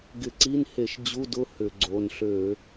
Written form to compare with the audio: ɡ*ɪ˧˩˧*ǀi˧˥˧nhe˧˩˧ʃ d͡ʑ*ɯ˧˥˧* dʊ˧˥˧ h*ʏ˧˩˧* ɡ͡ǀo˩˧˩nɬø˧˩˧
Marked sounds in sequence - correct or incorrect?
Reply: correct, incorrect: u˧˥˧, correct

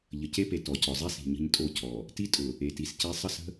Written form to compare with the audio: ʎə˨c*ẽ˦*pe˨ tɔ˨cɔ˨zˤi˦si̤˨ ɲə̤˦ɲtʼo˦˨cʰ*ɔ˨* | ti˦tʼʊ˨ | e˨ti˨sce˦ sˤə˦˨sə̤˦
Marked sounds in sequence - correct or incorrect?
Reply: incorrect: e˦, correct

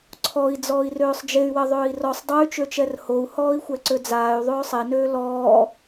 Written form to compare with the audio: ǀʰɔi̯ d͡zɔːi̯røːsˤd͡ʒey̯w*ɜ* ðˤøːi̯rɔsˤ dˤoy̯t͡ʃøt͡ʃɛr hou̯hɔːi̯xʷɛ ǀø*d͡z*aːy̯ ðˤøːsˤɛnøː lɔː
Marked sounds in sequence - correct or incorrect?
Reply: correct, correct

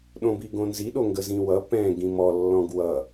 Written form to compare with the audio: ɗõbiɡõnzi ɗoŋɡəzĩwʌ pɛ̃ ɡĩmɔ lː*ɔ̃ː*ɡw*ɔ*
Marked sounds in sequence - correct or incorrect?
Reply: incorrect: ɔ̃, incorrect: ʌ

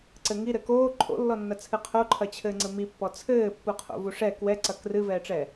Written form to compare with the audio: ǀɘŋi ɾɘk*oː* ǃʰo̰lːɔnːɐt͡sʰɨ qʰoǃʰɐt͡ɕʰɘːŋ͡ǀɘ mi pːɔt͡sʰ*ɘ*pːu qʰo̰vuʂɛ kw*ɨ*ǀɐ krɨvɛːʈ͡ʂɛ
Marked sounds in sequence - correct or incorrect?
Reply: correct, incorrect: ɘː, incorrect: ɛ

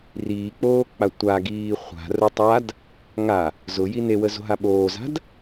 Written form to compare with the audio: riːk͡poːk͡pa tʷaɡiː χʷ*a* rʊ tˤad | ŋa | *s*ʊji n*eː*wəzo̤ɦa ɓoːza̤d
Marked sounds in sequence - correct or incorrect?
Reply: incorrect: a̤, incorrect: z, incorrect: e

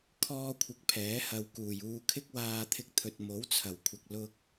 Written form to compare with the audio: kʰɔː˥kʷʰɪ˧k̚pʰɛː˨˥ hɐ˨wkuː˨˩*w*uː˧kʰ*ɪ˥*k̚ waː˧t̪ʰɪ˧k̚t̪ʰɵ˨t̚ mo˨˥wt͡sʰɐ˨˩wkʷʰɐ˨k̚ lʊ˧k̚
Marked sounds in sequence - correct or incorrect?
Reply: incorrect: j, correct

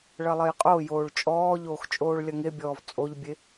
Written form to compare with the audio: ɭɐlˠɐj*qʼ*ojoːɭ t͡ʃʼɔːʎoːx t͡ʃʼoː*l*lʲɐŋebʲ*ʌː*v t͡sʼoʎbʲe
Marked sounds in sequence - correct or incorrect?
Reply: correct, incorrect: ɭ, incorrect: ɔː

